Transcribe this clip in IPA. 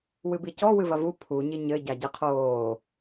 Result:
w ɨ b i c ɔ w ɨ v ɐ v u pʰ u ɲ i ɲ ɘ ɟ a ɟ ɛ qʰ oː

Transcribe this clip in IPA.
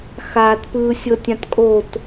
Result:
x aː t p ɯː sʲ ɤ tʲ ã t kʼ o t

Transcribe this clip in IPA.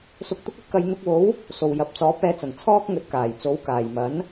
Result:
s ʊ˧ k̚ t̪ ʊ˥ k̚ ɐ˥ t̚ k ɐ˨˧ j n̪ ʊ˧ k̚ w o˨˥ w | s o˨˩ w j ɐ˨ p̚ t͡s ɔː˨˥ p̚ ɛː˧ t͡s ɐ˨˩ n t͡sʰ ɔː˥ k̚ ŋ ɵ˨˥ t̚ k aː˨˩ j t͡s o˨˥ w k aː˨˩ j m ɐ˨˥ n

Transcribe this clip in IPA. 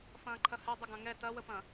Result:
f ɐ̃ː ǃʰ ɐ h ɛ dˤ ə ɡ ɐ̃ ŋ ɛ t ɐ w ə p ɐ̃

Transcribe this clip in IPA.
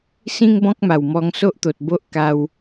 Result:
s ĩ˦ ŋ b ɔ̃˦ k̚ m a˨˩ w m ɔ˧ ŋ s o˦ ʔ t̪ o˨ t̚ b o˦ ʔ k a˧ w

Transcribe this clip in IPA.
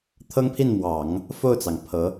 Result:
t̪ʰ ɤ˥ ŋ pʰ i˥˩ n m w ɑ˨˩˦ ŋ | f o˥˩ ʊ̯ t͡s ɑ˩ ŋ pʰ ɤ˧˥

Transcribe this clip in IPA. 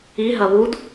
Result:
i ɦ ɐ β u d

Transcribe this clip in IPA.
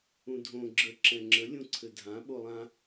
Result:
ũ dʱ õ ɡ͡ǁ ə ǁ ɛ̃ ŋ͡ǁ ə lʲ ũ ǀʰ ɘ dʱ ã ɓ o lˠ ã

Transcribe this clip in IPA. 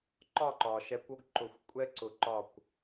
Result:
ǃ ɒ˦˨ ǃ ɒ˨ ʃ ɛ˧ kʷ o˦ ɡ ǃ ʊ˧ xʷ kʷʼ ɛ˦ ǀ ʊ˧ ǃ ɒ˦˨ kʷ

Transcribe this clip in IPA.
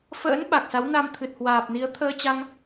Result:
f ə̰ː˧˥ n ɓ a˨˩ k̚ s a˨˦ w n a˧ m t̪ʰ ɨ˨˩ t̚ h w aː˨˩ p̚ n i˨˦ ə̯ t̪ʰ əː˧ t͡ɕ a˧ ŋ

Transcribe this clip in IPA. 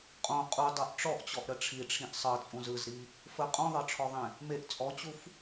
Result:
qʼ õ qʼ u dˤ ɤ ʔ ʈ͡ʂ ɔ ʔ t͡ɕ ɔ ʔ ɾ ə ʈ͡ʂʰ i ʈ͡ʂʰ ĩ ʔ sˤ ɤ t͡sʼ ũ z ɯ z ɾ i | f ə qʼ ũ ðˤ ɤ ʈ͡ʂʰ ɔ ðˤ ẽ | m e ʔ t͡sʼ ɔ t͡ɕ u f

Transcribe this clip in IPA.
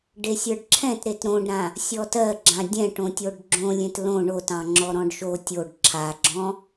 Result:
ɖ e sʲ ə˞ ɖ ǁʰ ɛ̃ t ɾ e t ɾ õ ɖ ɾ ã | sʲ ɔ t ɜ ɡ͡ǁ ã dʲ ɛ̃ ʈ õ tʲ o ɖ ɡ͡ǁ õ lʲ ẽ t l õ ɳ o t ɑ̃ ŋ͡ǁ ɔ ɾ ɔ̃ ɖ ʃ o tʲ o ɖ ǁʰ a ɡ͡ǁ ɔ̃

